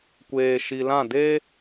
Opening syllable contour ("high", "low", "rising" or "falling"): low